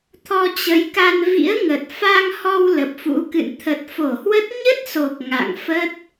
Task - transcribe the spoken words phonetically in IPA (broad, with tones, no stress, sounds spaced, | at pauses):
t̪ʰ ɔ˧ t͡ɕ ə˨˦ j k a˧ n v ḭ˧˥ ə̯ ŋ ə˨˩ t̚ f a˧ ŋ h ɔ˧ w l ə˨˩ p̚ f ṵ˧˥ k ɨ̰˧˨ n t̪ʰ ə˨˩ t̚ f o˧˩ h w ə˦˥ t̚ ɲ ə˦˥ t̚ s o˨˩ k̚ ŋ a̰˧˨ ŋ f ə˦˥ t̚